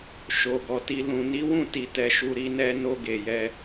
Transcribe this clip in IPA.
ʃ o˨ ɡ ɔ˨ t i˧ l ũ˨ n i˨˦ w ũ˦˨ t i˨ t ɛ˨ ʃ u˧ ɾ i˧ n ɛ˧ n o˧ ɡ e˨ j ɛ˧

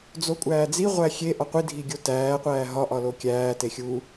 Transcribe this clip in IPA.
d͡z o kʷʼ æː d͡z i ʁʷ æ xʲ e ʔ ɒ qʷ i dʱ i ɡʲ o t æː qʷ æː ɦ ɒ ʔ ɒ l o kʲ æː t e xʲ u

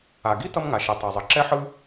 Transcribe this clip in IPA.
a˩ ɡ i˥ t ʌ˥ m ŋ a˩ ʃ i˩ tˤ a˩ zˤ ʌ˩ ǁ ɛ˥ ħ ɯ˥

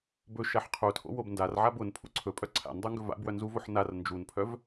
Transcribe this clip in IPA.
b ɵ ʃ a ħ qʰ u tʰ o̰ w o b n d a r ʕ a b ʊ n pʰ ṵ ǀʰ ɵ pʼ œ ǀʰ a̰ n dˤ ə˞ ŋ ɡ ɵ v a̰ b w œ n z u v o ħ n a r n d͡ʒ u n pʰ œ v

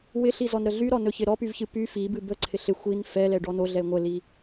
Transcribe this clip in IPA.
w ɪ ɬ i z ɔ n ɾ ə ɮ y ɾ ɔ n ɵ ç ɪ ɾ ɔ p y v ç ɨ p y f i b ɨ b ə ǀʰ ɪ ɬ ɪ xʷ i n f ɛ l ɛ ɖ ɔ n o ɮ ɛ e̯ ŋʷ ə l i

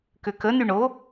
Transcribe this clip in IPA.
k ʏ k ə n y ɳ o

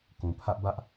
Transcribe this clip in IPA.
k ũ˨ pʰ ä˦ ʔ b ä˦ ʔ

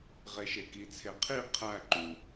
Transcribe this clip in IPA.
ʁ e ʃ e k i t͡sʰ e qʰ i qʰ æ ǃ u

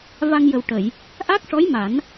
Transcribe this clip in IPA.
v a˧ ŋ j ə˨˩ w ʈ ə˨˩˨ j | ʔ a˦˥ k̚ ʂ ɔ˧˥ j m a˨˩˦ n

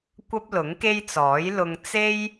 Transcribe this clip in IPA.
kʷ ɐ˥ p̚ l ʊ˨˥ ŋ k e˥ j t͡s ɔː˨˥ j l ʊ˧ ŋ t͡s e˥ j

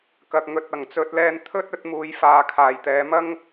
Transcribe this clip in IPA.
k ɐ˨ k̚ ŋ ɵ˨ t̚ ɐ˨˩ ŋ t͡s ɵ˧ t̚ l ɛː˧ n t̪ʰ ɵ˥ t̚ ɵ˨˥ t̚ m uː˨˧ j f aː˨˧ kʰ aː˨˩ j t̪ ɛː˨˧ m ɐ˥ ŋ

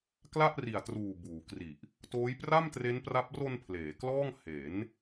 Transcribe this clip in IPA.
k l a˥˩ ʔ r i˨˩ a̯ t r uː˨˩ b uː˩˦ k r i˨˩ ʔ | t oː˦˥ j p r a˥˩ m t r e˦˥ n p r a˦˥ p̚ r o˧ n pʰ l eː˩˦ k l ɔː˥˩ ŋ h e˩˦ n

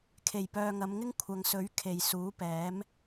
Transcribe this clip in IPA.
kʰ e˨˩ j p œː˨ ŋ ɐ˨˧ m ŋ ɪ˥ ŋ kʷʰ ɐ˨ ŋ s ɵ˨˥ ɥ kʰ e˨ j s uː˨˥ p ɛː˨˥ m

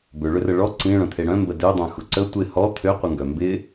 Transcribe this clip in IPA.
b ʏ ɭ ʏ r ə ɭ ɔ ǀ ĩ ɭ œ̃ t̪ʰ e ɽ œ̃ m b ə d ø dˤ œ̃ x ʊ ǀ ə tʷ ɪ h ɔ t̪ʰ ø qʷ ə ŋ ɡ œ m b ɪ

